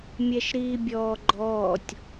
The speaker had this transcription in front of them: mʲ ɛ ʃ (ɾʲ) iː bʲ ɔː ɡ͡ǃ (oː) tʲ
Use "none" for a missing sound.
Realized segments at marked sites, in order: ɾ, ɔː

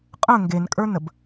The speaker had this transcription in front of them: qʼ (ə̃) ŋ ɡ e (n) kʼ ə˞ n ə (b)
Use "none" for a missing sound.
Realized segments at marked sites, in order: ə̃, n, b

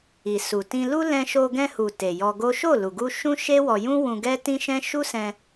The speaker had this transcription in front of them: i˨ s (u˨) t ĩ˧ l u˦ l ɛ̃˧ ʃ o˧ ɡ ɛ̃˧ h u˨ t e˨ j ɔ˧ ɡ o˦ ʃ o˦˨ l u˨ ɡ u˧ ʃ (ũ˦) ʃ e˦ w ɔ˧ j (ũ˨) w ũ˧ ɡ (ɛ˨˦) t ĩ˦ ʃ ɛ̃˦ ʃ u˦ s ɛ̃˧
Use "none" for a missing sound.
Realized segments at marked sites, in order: u˨, ũ˦, ũ˦, ɛ˦

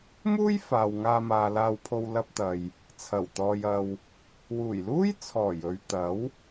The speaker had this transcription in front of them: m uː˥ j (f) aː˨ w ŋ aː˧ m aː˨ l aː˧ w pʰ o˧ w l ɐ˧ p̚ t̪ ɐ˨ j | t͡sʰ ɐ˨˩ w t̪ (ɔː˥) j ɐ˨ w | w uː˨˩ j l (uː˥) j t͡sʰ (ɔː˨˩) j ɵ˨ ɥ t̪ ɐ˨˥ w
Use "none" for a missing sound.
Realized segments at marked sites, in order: f, ɔː˨, uː˥, ɔː˨˩

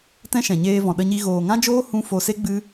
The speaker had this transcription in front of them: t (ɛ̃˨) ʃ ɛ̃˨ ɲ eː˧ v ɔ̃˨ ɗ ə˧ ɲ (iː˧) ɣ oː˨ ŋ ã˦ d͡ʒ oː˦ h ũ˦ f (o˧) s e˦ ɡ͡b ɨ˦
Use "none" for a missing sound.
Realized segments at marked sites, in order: ɛ̃˦, i˧, o˧

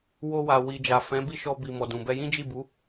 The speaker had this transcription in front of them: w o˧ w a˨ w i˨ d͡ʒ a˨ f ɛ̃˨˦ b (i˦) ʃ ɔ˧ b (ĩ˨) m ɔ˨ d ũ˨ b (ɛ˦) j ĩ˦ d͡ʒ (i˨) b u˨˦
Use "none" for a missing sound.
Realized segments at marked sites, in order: i˦˨, i˨, ɛ˧, i˦˨

